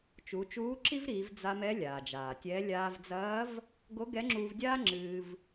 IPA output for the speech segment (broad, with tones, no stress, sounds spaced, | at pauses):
t͡ʃ u˩˧ t͡ʃ uː˧˥ ǁ i˥ v ɾ iː˩˧ v d͡z a˧ m ɛ˧˥ lʲ aː˩ d͡ʒ aː˩ tʲ ɛ˧˥ lʲ aː˧ v d͡z ɐː˧˥ v | ɡ o˧˥ ɡ ɛ˧˥ ŋ͡ǁ uː˧ v dʲ aː˥ ŋ͡ǁ ɨː˧ v